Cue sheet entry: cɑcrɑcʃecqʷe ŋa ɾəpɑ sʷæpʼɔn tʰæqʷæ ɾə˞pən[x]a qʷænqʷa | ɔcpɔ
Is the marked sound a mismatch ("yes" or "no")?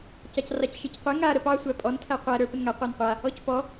yes